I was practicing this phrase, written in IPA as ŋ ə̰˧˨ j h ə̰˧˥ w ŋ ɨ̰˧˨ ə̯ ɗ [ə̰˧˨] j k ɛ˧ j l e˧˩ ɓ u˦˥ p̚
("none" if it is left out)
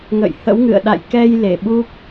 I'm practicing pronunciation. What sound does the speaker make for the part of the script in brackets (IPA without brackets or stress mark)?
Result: a̰˧˨